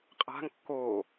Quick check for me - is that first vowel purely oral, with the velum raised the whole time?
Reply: yes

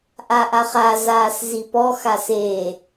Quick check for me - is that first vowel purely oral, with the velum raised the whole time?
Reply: yes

